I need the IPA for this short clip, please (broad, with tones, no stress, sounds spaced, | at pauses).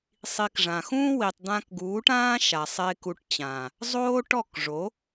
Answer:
sˤ i˧ k ʐ ã˨ x ũː˦ w i˨ tˤ d̪ ã˧ k ɡ uː˨˦ ʈ ãː˦ ʃ a˨ sˤ e˧ k u˧ ʈ t͡ɕ ãː˨ | zˤ oː˦ ʈ ɔ˦˨ k ʐ o˨˦